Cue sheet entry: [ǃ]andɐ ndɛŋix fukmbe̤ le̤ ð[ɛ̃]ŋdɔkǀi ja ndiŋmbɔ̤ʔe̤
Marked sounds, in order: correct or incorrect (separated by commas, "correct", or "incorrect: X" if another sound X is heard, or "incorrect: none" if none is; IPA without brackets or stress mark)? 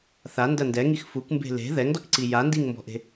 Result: incorrect: θ, incorrect: ɛ